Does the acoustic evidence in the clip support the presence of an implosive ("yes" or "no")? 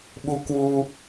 yes